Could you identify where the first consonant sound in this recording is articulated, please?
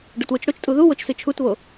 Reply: retroflex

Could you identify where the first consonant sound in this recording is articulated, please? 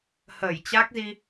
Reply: glottal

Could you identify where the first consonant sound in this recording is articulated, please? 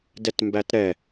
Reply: alveolar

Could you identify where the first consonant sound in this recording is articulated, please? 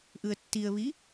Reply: glottal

